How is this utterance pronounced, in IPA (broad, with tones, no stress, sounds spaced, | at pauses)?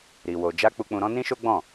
ɾ i˧ w o˧ d͡ʒ a˦ k͡p u˧ k͡p ũ˧ ɾ ɔ̃˦ n ĩ˦ ʃ o˦ ɡ͡b ɔ̃˦˨